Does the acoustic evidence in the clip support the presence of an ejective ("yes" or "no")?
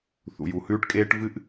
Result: yes